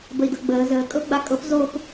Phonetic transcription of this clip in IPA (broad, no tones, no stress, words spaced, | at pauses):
bəi̯dɤɡ͡bəː zəːkʼɤɡ͡ba kʼɤp zop